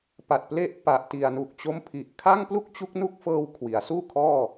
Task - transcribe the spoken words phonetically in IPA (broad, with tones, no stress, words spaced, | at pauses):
pa˨˩t̚ple˦˥ʔ pa˨˩ʔti˨˩a̯nu˨˩k̚ t͡ɕo˦˥mpʰi˨˩ʔkʰa˥˩ŋ plu˥˩k̚t͡ɕu˦˥k̚nu˦˥k̚fɤː˧w kʰwi˩˦a̯suː˥˩ kʰɔː˥˩